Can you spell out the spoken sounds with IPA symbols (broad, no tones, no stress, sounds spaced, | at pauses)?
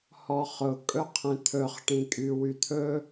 h ɔ χ ʊ kʼ ɵ qʰ ẽ t̪ʰ ɵ χ ʈ ĩ kʼ y w y t̪ʰ ɵ